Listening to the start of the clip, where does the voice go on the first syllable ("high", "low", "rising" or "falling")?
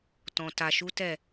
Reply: low